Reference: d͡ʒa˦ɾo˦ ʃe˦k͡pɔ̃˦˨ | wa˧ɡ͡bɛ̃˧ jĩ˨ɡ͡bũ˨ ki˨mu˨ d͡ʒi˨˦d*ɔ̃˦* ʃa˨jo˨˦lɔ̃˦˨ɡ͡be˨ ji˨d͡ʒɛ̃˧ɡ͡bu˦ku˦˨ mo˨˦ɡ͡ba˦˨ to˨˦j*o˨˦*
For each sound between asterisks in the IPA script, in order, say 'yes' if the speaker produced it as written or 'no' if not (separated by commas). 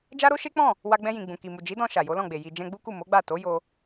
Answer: no, no